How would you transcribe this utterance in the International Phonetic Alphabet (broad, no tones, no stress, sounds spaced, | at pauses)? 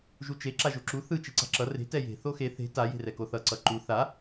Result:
ʒ u t͡ʃ e ǁ a ʒ o ǁ u θ ɯ t͡ʃ i ǀ a̤ ǁ ʌ r e̤ t ɛ j e̤ θ o x e θ e̤ t a j e̤ r ɛ k o θ ʌ ǀ ʌ ǃ u θ a